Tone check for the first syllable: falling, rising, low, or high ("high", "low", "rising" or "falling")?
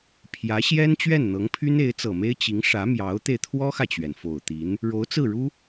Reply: rising